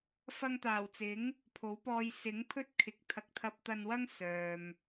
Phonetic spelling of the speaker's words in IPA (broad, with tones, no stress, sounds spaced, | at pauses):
f ɐ˧ ŋ t̪ aː˨˩ w t͡s ɪ˨˥ ŋ | pʰ o˨˥ w p ɔː˧ j s ɪ˨˥ ŋ pʰ ɵ˥ t̚ kʰ ɪ˨˥ k̚ t̪ʰ ɐ˨˥ k̚ t̪ʰ ɐ˧ p̚ t̪ ɐ˧ n w ɐ˥ ŋ s œː˨ m